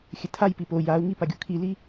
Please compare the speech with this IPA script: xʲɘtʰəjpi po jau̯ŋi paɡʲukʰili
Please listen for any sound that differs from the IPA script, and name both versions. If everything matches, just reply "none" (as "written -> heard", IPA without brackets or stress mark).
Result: ə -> a